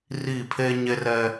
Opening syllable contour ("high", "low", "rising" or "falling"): falling